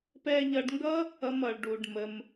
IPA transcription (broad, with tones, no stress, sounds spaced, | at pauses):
p ɛ˧ ʎ ʌ˧ ɖ ŋ ɡ ʌ˦ | ʌ˦ m ʌ˧ ɭ ɖ u˧ ɖ m ə˦ m